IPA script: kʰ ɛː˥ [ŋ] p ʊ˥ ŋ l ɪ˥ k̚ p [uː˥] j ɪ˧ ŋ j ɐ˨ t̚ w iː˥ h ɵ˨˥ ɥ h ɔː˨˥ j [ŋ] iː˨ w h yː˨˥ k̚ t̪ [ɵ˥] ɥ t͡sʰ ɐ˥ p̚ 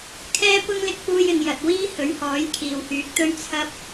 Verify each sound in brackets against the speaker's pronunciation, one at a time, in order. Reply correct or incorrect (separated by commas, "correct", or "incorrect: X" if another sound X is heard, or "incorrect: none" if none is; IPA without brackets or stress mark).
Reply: incorrect: none, correct, incorrect: kʰ, correct